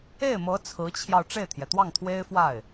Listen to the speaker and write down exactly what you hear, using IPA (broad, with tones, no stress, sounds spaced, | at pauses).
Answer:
e˥˩ ɪ̯ m ɤ˧˥ t͡sʰ ɹ̩˧˥ t͡ɕʰ j ɑ˧ ʊ̯ ʈ͡ʂ e˥˩ ɪ̯ t̪ʰ j ɛ˩ t̪ w ɑ˥˩ ŋ t̪ʰ w e˥ ɪ̯ f w a˥˩ ɪ̯